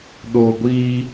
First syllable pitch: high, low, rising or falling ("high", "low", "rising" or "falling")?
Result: low